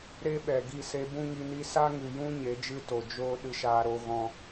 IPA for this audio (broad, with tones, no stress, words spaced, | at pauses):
ɾe˦ɓɛ˨ ɡi˦˨se˧bũ˦ ŋi˧ni˦ sa˦ŋɨ˨jũ˦ ɲe˨˦d͡ʒɨ˦to˨ d͡ʒoː˦ ɗɨ˧ʃaː˧ɾo˧ ɣɔ̃˧